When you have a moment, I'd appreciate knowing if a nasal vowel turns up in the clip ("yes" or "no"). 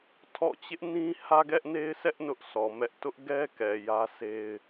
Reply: yes